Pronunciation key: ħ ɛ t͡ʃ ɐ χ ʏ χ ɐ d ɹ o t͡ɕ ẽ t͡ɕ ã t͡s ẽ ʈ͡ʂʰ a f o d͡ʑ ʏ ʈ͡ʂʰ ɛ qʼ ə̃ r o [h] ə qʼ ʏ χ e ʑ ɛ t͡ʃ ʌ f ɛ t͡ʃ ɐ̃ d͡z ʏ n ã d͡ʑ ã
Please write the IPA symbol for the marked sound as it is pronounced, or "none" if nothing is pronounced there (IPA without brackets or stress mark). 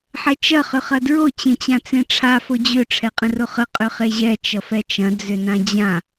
χ